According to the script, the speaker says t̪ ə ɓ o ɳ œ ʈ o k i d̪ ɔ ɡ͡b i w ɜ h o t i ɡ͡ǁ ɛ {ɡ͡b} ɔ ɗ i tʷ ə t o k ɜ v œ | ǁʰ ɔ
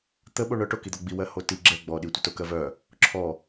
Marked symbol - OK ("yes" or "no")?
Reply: yes